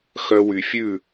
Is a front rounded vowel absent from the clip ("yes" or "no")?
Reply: no